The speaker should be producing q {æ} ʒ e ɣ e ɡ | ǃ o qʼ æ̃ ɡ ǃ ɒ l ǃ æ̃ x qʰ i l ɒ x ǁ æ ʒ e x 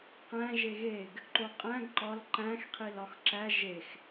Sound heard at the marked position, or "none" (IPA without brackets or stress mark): æ̃